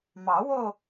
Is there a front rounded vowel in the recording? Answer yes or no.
no